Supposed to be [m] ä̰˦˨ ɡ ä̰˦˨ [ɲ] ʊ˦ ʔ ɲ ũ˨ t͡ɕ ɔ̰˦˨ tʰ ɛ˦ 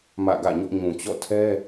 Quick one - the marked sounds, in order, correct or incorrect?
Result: correct, correct

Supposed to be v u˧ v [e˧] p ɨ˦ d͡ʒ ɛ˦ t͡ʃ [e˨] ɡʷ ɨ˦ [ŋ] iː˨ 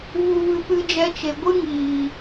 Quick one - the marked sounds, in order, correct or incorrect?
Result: incorrect: ɨ˧, correct, correct

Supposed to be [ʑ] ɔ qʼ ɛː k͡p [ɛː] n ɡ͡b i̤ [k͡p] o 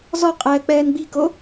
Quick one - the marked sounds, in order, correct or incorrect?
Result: incorrect: z, correct, incorrect: k

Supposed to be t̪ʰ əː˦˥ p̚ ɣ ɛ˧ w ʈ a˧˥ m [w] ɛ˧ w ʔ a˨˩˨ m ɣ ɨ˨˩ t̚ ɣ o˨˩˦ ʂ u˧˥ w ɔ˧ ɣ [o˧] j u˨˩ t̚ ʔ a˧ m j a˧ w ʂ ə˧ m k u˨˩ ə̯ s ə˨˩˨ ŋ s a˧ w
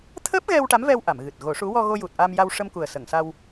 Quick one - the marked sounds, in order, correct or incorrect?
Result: incorrect: v, correct

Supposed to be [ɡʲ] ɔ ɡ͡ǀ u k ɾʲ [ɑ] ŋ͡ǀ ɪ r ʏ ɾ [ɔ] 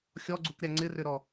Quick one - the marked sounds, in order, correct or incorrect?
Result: incorrect: xʲ, incorrect: a, correct

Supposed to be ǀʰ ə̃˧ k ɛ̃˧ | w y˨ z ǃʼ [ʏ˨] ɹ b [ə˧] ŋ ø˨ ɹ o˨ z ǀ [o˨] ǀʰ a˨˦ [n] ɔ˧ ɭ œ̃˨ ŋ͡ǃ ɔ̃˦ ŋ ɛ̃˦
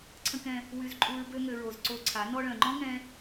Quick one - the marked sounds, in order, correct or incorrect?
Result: incorrect: u˨, incorrect: ø˧, incorrect: o˧, correct

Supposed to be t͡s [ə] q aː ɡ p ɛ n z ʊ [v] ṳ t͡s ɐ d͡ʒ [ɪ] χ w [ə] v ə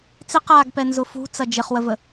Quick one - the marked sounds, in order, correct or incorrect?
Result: incorrect: ɪ, incorrect: f, correct, correct

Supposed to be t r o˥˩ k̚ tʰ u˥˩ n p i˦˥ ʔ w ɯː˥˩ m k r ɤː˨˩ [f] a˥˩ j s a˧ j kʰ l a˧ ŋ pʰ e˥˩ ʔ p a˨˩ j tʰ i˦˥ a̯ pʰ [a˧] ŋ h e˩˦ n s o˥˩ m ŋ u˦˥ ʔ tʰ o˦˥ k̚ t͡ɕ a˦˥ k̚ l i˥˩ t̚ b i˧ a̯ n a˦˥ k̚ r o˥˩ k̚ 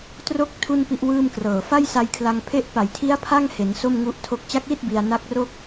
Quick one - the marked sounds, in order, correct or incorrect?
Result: correct, incorrect: a˥˩

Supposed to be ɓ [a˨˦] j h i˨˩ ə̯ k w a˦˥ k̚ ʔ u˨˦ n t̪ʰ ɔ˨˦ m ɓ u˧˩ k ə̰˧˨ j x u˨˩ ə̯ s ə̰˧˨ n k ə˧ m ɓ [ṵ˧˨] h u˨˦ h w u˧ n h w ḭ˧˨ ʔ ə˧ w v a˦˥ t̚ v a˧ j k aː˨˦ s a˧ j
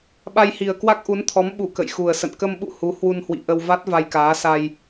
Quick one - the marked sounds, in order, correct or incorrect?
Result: incorrect: a˧, correct

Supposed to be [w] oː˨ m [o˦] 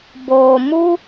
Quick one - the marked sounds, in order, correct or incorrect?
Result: incorrect: b, incorrect: u˦

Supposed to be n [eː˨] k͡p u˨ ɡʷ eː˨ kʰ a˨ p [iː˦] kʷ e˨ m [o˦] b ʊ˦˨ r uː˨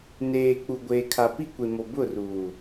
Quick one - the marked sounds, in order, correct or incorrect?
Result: correct, incorrect: i˦, incorrect: o˨

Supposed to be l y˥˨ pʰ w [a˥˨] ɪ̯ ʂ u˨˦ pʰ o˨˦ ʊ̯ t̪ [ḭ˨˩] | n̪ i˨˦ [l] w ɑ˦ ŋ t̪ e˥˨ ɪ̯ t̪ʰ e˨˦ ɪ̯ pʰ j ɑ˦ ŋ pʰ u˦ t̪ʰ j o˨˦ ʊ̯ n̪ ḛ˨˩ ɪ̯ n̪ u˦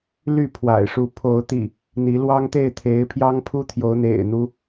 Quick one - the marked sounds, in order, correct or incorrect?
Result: incorrect: a̰˨˩, correct, correct

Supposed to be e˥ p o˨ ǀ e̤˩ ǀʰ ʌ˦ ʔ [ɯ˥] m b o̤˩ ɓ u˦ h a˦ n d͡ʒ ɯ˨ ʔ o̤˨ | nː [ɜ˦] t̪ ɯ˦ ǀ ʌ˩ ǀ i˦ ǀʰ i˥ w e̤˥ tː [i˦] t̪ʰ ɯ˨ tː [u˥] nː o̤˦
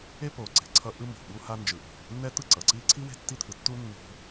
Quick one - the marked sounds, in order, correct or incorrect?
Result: correct, incorrect: ɛ˦, correct, correct

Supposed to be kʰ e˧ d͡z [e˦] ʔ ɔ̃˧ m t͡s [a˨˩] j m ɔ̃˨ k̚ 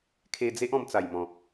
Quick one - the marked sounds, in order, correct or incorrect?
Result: correct, correct

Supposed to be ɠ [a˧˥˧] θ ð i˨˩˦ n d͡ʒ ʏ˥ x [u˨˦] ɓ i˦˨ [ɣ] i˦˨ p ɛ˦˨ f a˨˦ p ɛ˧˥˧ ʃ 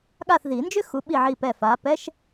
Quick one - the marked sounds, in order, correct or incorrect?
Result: incorrect: a˦˨, correct, incorrect: ʕ

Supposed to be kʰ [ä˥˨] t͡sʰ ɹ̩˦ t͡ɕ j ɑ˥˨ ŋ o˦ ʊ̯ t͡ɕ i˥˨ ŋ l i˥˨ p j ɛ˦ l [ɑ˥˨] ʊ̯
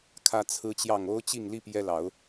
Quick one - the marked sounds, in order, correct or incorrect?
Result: incorrect: ä˦, incorrect: ɑ˨˦

